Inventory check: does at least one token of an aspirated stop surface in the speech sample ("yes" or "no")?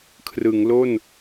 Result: yes